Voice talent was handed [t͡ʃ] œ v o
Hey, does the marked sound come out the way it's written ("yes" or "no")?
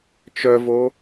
yes